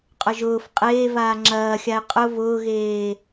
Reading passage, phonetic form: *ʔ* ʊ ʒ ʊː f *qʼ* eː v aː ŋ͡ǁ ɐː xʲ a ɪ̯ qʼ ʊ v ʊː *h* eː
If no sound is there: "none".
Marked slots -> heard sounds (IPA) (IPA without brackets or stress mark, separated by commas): qʼ, qʼ, ɣ